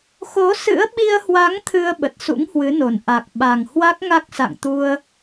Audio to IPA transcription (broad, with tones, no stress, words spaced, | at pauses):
xo˨˦ sɨ̰˧˥ə̯ɓi˧ə̯hwa˨˦ŋ t̪ʰɨ˧ə̯ ɓə˨˩t̚sṵ˧˥ŋhwɨ˨˦no˨˩n ʔa˨˩k̚ ɓa˨˩ŋ hwa˦˥k̚ŋa˦˥k̚sa̰˧˨ŋt̪u˧ə̯